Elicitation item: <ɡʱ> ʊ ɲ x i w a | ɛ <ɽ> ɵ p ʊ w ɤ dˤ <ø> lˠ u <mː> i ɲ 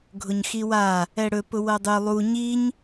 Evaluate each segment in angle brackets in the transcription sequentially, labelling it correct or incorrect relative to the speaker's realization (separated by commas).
correct, correct, correct, incorrect